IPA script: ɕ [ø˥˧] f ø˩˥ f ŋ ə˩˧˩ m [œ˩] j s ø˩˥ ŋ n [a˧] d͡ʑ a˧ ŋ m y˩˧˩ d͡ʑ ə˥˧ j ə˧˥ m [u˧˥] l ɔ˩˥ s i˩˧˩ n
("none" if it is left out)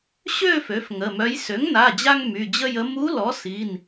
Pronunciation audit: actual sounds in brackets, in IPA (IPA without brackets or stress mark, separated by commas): ø˥˧, œ˧˥, a˩˧˩, u˧˥